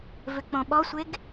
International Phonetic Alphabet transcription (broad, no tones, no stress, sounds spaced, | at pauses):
v ʏ k͡p õ ɓ ɔ sʷ e ɡ